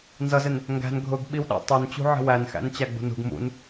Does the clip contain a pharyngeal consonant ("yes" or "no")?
yes